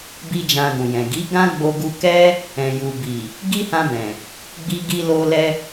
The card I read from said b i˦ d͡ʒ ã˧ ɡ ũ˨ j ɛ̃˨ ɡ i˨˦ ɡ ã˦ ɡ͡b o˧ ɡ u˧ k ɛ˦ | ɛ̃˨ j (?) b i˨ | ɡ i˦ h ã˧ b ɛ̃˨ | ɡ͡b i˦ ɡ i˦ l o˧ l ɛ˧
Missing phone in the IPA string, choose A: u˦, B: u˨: B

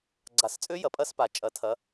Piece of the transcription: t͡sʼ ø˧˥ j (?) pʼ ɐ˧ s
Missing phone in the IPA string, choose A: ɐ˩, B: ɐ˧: A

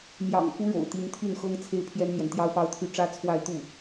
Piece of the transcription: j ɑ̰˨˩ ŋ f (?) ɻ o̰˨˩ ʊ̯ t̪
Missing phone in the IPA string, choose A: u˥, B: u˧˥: B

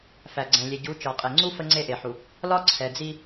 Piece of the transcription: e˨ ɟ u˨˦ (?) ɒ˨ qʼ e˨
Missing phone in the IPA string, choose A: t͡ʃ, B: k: A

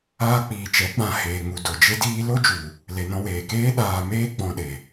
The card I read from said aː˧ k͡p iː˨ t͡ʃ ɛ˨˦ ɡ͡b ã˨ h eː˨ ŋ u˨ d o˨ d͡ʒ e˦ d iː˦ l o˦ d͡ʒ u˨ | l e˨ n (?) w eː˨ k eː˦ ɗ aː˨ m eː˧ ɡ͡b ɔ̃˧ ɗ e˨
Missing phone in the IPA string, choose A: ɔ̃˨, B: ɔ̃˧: B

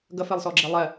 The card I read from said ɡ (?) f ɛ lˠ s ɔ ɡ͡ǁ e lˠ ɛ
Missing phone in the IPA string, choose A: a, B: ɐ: B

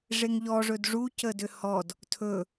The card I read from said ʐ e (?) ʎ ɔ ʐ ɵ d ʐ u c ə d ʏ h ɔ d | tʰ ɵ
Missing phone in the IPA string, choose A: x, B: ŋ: B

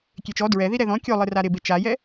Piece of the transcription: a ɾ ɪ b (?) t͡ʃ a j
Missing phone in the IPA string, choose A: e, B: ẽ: A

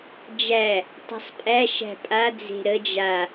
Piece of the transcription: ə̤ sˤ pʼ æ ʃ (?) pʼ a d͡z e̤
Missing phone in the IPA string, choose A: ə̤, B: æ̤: B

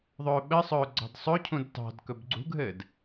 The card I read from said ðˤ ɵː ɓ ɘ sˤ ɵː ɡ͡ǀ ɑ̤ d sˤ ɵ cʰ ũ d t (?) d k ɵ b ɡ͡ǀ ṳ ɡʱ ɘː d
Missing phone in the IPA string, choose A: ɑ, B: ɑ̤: B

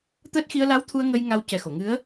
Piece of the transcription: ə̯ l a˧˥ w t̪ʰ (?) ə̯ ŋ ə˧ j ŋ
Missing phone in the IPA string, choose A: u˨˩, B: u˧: B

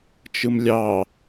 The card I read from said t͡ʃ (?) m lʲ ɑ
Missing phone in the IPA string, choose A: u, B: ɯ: B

